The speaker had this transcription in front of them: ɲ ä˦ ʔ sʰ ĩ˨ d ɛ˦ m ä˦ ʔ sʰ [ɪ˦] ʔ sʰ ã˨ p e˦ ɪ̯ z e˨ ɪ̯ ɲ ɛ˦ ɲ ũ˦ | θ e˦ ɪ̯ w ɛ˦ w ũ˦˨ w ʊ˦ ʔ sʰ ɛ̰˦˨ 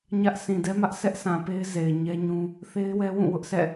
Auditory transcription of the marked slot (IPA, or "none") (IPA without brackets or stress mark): ɛ˦